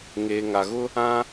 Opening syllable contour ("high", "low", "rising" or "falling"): low